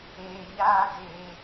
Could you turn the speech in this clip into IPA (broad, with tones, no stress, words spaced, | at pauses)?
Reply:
eː˧ɲaː˦ deː˧